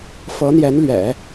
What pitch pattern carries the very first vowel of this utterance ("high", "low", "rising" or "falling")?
rising